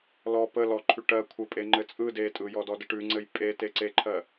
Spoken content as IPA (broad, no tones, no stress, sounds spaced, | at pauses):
l ɔ p ə l ɔ ǃʰ ʉ ʈ ɜ kʷʰ ɘ pʼ e ŋ͡ǃ ɘ t͡sʼ ɯ d e tʼ ɯ j ɔ d ɔ d ə ʈ ʉ ŋ͡ǀ ɘ j pʼ e t e ǀ e ǃʰ ɜ